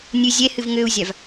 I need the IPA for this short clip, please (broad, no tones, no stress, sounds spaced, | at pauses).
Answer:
nʲ ɨ zʲ ɛ h ɨ v ŋ ø u̯ zʲ a v